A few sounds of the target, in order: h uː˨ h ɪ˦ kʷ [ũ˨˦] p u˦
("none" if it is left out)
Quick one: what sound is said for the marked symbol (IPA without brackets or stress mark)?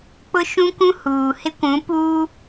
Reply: ũ˨˦